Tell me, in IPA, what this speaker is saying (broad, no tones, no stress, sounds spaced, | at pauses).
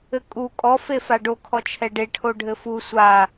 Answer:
ɘ kʼ u kʼ ɔ f e f a ɖ o kʰ ɔ t͡ʃʰ ɛ ɖ e ʈʰ o ɖʱ ɘ f u sʷ a